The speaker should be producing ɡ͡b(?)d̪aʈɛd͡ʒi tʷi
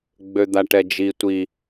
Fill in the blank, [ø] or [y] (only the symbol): ø